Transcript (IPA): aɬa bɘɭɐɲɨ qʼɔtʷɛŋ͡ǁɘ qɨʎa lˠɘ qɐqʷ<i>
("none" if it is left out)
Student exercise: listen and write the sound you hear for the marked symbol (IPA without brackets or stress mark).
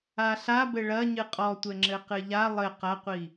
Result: i